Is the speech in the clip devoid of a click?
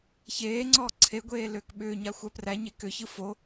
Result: no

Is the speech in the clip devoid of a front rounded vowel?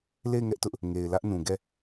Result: yes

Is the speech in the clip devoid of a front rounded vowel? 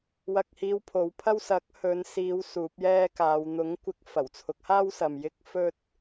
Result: yes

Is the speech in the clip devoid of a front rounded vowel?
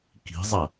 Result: yes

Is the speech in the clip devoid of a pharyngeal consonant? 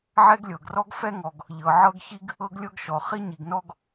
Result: no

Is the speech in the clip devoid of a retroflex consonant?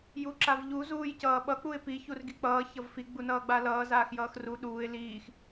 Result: yes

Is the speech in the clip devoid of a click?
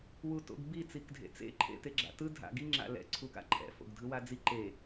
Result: no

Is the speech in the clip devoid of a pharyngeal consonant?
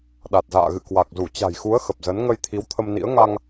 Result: yes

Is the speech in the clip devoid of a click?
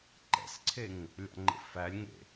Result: no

